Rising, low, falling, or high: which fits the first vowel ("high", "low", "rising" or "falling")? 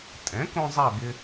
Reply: rising